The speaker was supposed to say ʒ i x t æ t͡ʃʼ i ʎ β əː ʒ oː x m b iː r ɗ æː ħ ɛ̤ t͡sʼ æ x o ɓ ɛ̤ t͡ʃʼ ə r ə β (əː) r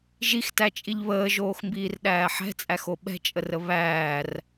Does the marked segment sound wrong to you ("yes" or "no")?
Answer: yes